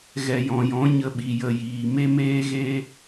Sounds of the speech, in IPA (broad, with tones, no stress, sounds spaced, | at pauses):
ɣ ɛ˨ j ɔ̃˨ j ɔ̃˨˦ ɲ ə˨ ɓ i˨ j ə˨ j iː˨ m e˦ m eː˦ ɣ eː˦